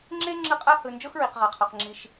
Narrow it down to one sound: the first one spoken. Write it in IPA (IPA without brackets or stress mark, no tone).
ŋ͡ǁ